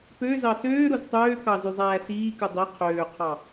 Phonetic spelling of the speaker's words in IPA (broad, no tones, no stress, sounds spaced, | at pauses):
p ø z ɑ s øː ɾ u z tˤ øː k ɑ z y zˤ æː s iː k ɯ dˤ i qʰ øː qʰ ɑ